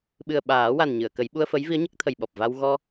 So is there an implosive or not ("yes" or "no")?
yes